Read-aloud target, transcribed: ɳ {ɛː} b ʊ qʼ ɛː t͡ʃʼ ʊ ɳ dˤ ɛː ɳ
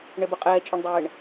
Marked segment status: incorrect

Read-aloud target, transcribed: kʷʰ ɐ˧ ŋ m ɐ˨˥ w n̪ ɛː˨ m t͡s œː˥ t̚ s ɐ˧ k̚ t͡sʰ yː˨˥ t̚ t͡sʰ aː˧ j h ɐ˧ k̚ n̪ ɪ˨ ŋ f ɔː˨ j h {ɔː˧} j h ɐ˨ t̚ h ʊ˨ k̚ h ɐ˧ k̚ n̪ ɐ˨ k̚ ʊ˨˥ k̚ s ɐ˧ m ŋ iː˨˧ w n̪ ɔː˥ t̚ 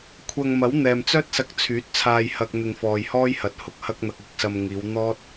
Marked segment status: incorrect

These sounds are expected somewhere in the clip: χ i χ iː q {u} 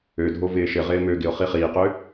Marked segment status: incorrect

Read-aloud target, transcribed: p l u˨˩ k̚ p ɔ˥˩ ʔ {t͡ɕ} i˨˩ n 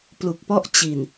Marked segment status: correct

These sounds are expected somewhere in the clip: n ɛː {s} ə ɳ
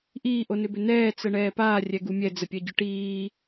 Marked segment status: incorrect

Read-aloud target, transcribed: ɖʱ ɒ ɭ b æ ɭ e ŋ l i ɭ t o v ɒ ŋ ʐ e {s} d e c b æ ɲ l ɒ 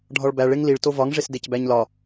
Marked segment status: correct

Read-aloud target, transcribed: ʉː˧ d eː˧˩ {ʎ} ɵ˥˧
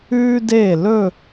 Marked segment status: incorrect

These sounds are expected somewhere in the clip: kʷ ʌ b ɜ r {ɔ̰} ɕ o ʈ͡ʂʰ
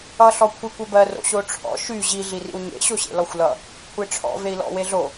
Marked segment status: incorrect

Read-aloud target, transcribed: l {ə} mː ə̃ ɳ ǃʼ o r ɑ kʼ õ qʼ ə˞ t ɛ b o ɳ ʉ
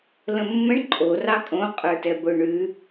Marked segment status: incorrect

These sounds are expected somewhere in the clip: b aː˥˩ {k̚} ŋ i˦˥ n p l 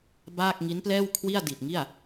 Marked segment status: correct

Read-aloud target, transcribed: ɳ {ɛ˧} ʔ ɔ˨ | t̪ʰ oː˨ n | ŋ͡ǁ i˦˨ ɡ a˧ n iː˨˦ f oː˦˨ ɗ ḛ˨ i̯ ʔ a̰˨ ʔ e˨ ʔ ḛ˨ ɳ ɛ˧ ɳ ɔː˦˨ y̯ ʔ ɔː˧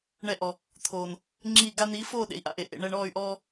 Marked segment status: correct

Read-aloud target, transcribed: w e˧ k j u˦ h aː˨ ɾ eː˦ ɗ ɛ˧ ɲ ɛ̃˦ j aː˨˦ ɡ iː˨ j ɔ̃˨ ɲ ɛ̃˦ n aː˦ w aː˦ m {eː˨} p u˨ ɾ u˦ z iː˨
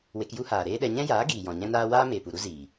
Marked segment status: correct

